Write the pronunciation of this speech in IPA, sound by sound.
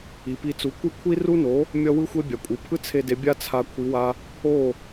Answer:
i˩ p i˧ t͡s u˩˥ kʷ ɯ˥ kʷʰ i˥ r u˥ n o˩˥ | mʲ ʌ˥ w ɯ˥ xʷ e˥ bʲ a˩ kʷʼ ɯ˩ pʰ ɯ˥ t͡sʰ e˧ d e˩˥ bʲ a˥ t͡sʰ a˧ kʷʰ i˩˥ w a˧ | o˥˩

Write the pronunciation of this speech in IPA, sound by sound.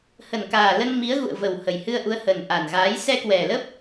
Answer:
h ə˨˩ n k aː˨˩ l ə˧ n m i˨˦ ə̯ ɣ ṵ˧˨ ə̯ v ə˨˩ w h ə˨˩ j h ɨ˧ ə̯ ʔ u˨˦ ə̯ h ə˨˩ n ʔ a˨˩ n ɣ aː˨˦ j s ɛ˧ k w ɛ˨˩ l ə˦˥ p̚

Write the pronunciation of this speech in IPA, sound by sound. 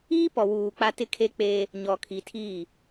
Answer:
iː˦ p ɔ˨ w uː˨ k͡p a˦ t ɪ˦ kʰ e˦ k͡p eː˦ | ɲ ɔ˨ kʰ i˨ tʰ iː˦˨

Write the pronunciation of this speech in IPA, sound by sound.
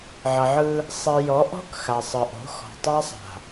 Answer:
ʕ ʌ˨ ʕ ɯ˦ | sˤ i˨ j ɔ˨˦ ʔ ɔ̤˦ k x a˨ sˤ ɯ˨ ʔ o̤˨˦ x ɔ̤˨ tˤ a˦ sˤ a̤˨

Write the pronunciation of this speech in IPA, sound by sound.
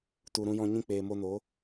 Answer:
t u˨ ɾ ũ˧ j ɔ̃˧ ɲ ĩ˧ k͡p eː˨ m o˧ n o˨˦

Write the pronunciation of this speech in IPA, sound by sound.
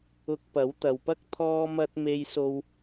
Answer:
ʊ˧ k̚ p ɐ˨˥ w t̪ ɐ˨ w p ɐ˥ k̚ t̪ʰ ɔː˧ m ɐ˧ t̚ m e˧ j s o˧ w

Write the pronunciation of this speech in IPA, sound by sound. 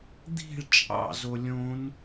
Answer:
d̪ i̤ ɭ t͡ʃʼ ɑ̰ z o lʲ õ n

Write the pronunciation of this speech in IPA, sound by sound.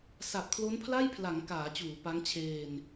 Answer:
s a˨˩ p̚ kʰ l o˦˥ n pʰ l a˥˩ j pʰ l a˩˦ ŋ k aː˩˦ t͡ɕ uː˩˦ p a˦˥ ŋ t͡ɕʰ eː˧ n

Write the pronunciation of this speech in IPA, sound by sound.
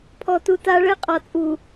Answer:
pʰ ɔ˨ t u˨ t a˦ ɭ ɛ˦ qʼ ɒ˨ t͡sʼ u˨

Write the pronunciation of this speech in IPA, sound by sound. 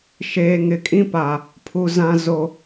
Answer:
ʃ eː˨ ŋ ɪ˨ kʼ ĩ˦ p a˨ | pʰ u˨ z ã˨ z o˨

